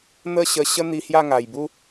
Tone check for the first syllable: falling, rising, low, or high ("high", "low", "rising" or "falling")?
falling